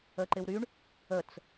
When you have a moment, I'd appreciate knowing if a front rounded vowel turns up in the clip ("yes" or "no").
yes